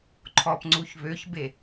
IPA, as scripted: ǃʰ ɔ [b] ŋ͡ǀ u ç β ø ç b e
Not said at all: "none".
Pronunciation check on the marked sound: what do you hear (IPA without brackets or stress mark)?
p